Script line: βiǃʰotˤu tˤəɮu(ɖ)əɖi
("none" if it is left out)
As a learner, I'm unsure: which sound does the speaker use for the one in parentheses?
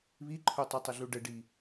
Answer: ɖ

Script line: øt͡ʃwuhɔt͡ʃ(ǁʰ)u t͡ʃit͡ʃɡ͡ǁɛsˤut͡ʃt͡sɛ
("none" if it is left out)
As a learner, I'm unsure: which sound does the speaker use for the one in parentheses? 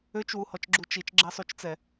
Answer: ɡ͡ǁ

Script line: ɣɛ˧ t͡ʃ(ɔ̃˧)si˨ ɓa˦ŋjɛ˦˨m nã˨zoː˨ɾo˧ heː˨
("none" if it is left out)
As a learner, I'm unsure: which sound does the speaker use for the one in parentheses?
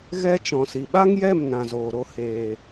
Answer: ɔ̃˨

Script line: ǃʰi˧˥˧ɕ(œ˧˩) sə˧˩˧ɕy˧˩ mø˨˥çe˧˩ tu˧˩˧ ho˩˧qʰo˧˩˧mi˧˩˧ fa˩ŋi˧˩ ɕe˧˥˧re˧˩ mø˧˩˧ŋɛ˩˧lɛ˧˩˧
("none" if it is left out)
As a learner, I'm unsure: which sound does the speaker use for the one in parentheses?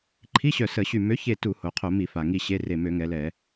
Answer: œ˧˩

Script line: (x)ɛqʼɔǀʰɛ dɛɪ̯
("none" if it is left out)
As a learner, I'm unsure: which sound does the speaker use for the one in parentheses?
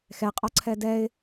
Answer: x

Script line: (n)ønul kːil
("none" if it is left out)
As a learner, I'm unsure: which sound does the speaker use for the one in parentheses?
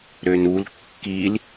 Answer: ɾ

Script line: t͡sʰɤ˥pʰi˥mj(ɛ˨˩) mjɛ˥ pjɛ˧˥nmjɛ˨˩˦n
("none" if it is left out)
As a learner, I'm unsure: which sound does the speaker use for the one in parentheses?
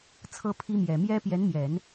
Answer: ɛ˨˩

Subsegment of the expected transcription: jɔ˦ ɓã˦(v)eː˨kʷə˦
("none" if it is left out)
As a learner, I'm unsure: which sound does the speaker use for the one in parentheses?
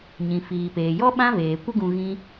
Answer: v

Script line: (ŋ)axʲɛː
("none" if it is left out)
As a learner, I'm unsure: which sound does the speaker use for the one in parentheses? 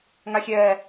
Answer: ŋ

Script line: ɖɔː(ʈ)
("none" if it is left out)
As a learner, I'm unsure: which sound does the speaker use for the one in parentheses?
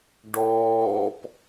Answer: p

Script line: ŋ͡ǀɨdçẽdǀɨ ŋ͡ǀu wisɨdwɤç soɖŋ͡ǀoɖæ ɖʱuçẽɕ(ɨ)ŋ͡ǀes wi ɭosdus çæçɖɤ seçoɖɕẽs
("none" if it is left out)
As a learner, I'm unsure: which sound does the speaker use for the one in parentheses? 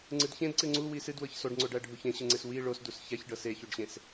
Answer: ɨ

